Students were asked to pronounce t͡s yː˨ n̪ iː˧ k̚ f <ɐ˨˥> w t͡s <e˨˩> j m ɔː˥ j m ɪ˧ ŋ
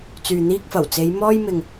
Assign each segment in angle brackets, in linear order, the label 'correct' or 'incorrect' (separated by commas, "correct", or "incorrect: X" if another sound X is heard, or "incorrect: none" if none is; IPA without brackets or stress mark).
incorrect: ɐ˨˩, incorrect: e˨˧